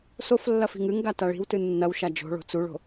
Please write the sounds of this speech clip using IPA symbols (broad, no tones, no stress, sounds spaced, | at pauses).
s o f lː ɐ f i̤ ŋ ɨ ŋ ɡ a t a ɭ i̤ w t ɨ nː ɐ w ʃ a d͡ʒ o̤ ɭ o̤ t͡s u ɭ o̤